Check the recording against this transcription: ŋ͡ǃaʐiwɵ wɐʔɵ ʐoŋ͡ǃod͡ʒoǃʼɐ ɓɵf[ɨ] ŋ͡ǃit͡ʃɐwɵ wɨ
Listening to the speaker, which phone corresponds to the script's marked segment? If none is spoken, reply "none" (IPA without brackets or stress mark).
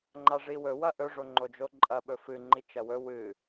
ɨ